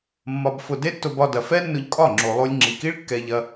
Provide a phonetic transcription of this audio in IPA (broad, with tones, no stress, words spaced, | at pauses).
mːɒ˧bfʊ˧ de˦tːʊ˧bɒ˧dɐ˨ fɛ˦nːʊ˧ʎkʼɒ˦˨ŋ͡ǁo˨ lˠo˧lʲŋ͡ǁi˨ki˦ɭ kːɛ˧ʎɐ˧